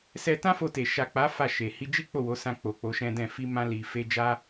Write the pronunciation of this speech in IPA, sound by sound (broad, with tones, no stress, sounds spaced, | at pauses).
s ɛ˧ t ã˦ f o˧ t e˨ ʃ a˨ k͡p a˨˦ f a˦˨ ʃ e˨ h i˧ d͡ʒ i˦ k͡p o˦˨ w o˨˦ s ã˧ k͡p o˨ k͡p o˨˦ ʃ ɛ̃˦ d ɛ̃˦˨ f i˧ m ã˧ l i˨ f e˧ d͡ʒ a˦